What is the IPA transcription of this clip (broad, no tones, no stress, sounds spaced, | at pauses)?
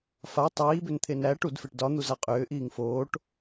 f a tˤ iː b ʏ n t̪ʰ e n æ ʈ u d f e ʈ d ɒ n̪ u z a qʼ ʏː ʔ iː ŋ f oː ʈ